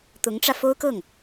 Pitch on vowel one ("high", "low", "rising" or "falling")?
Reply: rising